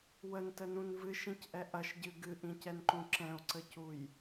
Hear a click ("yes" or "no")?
yes